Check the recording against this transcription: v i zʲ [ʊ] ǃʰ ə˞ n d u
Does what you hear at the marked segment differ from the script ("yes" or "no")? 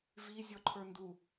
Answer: yes